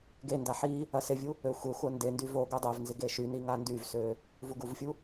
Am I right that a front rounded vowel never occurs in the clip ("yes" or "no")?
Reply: no